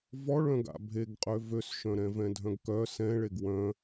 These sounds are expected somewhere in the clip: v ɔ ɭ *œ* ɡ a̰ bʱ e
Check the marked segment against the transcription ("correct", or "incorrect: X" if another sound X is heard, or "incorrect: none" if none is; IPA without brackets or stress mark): incorrect: œ̃